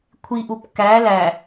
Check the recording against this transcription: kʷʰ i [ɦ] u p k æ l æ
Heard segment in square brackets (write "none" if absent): ʔ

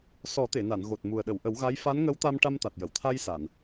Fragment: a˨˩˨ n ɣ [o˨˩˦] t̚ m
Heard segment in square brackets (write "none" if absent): o˨˩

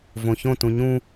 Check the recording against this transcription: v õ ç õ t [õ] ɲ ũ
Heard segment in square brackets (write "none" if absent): ũ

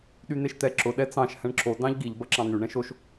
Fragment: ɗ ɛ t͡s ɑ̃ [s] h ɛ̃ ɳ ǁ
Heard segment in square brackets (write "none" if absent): ʃ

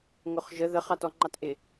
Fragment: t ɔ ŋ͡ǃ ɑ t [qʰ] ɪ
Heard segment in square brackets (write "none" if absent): ʔ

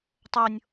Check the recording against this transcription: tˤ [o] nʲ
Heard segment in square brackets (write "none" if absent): o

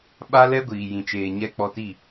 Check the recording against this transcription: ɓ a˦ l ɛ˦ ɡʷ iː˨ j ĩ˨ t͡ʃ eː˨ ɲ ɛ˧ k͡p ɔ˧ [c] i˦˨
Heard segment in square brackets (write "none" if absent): t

